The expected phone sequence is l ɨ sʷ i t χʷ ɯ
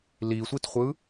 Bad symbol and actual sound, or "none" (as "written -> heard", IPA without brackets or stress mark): ɨ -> i